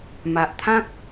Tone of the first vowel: low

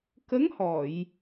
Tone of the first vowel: rising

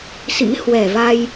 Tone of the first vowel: rising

